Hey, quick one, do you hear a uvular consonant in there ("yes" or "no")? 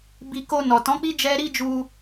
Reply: no